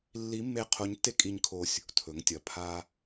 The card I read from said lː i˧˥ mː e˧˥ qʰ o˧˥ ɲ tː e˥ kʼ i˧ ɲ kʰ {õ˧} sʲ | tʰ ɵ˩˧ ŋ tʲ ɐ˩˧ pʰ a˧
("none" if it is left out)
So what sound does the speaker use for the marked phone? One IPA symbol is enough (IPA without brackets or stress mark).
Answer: o˧